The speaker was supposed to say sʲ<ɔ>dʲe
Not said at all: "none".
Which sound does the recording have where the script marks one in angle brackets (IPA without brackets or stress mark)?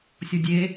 ɔ